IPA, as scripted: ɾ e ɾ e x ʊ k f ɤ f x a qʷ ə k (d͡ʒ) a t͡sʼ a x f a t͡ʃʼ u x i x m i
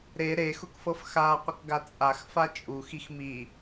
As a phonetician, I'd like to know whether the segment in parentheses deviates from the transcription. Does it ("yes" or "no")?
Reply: yes